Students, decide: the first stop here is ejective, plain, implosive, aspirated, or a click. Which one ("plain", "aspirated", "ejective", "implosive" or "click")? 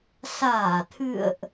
aspirated